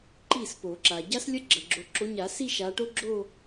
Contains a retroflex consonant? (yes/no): yes